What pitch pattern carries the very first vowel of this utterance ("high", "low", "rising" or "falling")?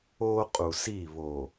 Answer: high